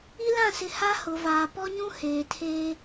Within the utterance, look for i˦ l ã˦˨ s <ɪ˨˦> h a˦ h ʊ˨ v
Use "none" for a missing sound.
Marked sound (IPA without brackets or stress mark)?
ɪ˨˦